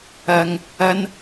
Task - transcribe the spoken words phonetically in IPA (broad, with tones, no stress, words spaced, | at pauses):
ɐ˥ŋ | ɐ˥n